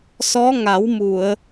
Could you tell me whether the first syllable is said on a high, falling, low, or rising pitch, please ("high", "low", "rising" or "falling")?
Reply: rising